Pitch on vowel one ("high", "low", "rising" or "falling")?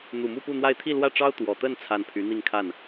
low